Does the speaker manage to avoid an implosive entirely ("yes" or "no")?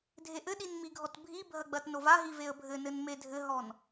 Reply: no